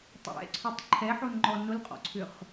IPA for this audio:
tˤ ɛ̰ ǀʰ o tˤ ǃʰ ɛ ħ o n ŋ͡ǃ ɔ n ʊ l qʼ ɔ̰ ǀʰ ʏ χ

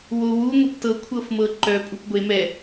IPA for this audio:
w o w u ŋʷ ə p t ɤ kʷʰ ɤ f m ɤ ǃ œ pʼ u p ɡʷ e m ɛ

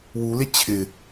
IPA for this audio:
w u l e t͡ɕʰ ɪ

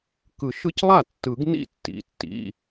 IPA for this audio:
k ɯ˨˩˦ ʃ ɯ˦ c lˠ a˥˩ tː ɯ˨˩˦ ɡ n ḭ˥˩ tː ḭ˩˧˩ tː ḭ˩˧˩

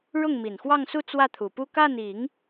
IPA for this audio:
ɻ ʊ˥˩ ŋ m i˨˩ n x w ɑ˥˧ ŋ s u˥˧ t͡s w ä˥˩ t̪ʰ u˨˩ p u˥˧ k a˥˩ n i˨˩˦ ŋ

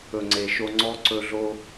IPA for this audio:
ɵ˨ ŋ͡ǀ e˨ ʃ o˧ ŋ͡ǀ ɔ˧ ǀ ɵ˧ ɮ o˧

